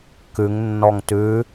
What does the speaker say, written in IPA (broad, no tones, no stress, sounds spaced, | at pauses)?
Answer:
k ʉ ŋ nː ɔ ŋ t ʉ